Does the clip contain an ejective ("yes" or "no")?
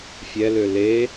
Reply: no